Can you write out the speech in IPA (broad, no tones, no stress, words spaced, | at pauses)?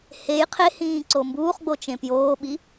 hej qʰehĩːǀo mbuːχɡ͡bot͡ʃẽ pjoːɓi